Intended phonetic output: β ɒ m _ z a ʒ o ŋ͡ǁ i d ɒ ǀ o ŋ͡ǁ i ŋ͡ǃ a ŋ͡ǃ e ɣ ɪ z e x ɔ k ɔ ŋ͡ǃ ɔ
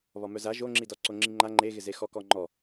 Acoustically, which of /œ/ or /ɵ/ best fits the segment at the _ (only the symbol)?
œ